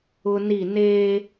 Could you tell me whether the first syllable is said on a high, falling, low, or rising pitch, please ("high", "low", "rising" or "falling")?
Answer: high